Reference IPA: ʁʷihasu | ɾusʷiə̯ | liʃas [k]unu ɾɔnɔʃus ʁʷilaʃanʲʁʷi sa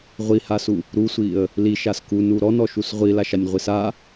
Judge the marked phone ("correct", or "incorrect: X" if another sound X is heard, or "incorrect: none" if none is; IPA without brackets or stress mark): correct